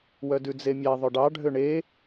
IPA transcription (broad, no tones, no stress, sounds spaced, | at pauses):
w œ d ʉ d͡z e mʲ æ ðˤ ɵ ɖ ɑ ɖʱ ø ɳ e